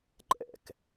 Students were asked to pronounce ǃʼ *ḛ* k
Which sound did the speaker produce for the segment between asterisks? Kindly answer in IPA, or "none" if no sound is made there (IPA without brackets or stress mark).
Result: ɛ̰